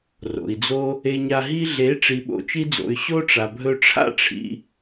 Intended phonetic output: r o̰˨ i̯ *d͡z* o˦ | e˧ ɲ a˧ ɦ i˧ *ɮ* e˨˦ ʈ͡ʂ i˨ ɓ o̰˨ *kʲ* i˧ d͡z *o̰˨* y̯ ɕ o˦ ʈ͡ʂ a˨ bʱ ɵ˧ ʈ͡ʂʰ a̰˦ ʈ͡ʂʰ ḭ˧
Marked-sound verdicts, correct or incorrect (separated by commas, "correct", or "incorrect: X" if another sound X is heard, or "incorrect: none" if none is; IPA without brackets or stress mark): correct, correct, incorrect: t͡ʃ, correct